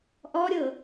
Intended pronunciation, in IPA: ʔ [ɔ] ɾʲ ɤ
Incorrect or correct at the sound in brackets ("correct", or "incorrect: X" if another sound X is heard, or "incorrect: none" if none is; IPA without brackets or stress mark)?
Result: correct